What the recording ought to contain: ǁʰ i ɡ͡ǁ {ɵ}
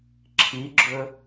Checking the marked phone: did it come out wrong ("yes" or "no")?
no